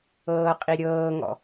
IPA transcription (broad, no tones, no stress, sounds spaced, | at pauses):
ɤː qʼ i ɾʲ ɤː ŋ ɔ̰